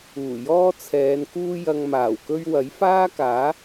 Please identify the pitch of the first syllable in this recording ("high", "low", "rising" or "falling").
low